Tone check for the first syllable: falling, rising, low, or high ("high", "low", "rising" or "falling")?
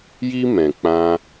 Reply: high